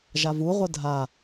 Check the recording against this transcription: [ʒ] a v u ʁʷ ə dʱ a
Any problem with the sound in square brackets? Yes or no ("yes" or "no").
no